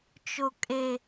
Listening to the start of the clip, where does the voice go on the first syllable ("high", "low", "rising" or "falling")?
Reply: low